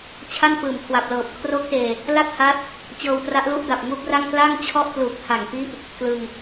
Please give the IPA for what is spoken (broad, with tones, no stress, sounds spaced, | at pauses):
t͡ɕʰ a˥˩ n f ɯː˨˩ m kʰ w a˨˩ p̚ l ɤː˨˩ p̚ kʰ r o˦˥ k̚ t eː˧ | l a˥˩ t̚ h a˦˥ t̚ | t͡ɕ ɤː˧ w t r a˦˥ ʔ l u˦˥ ʔ d a˨˩ p̚ ŋ u˦˥ k̚ r a˥˩ ŋ p l a˥˩ ŋ t͡ɕʰ ɔ˥˩ ʔ p l u˨˩ k̚ h a˨˩ ŋ f i˦˥ ʔ | k l ɯ˧ ŋ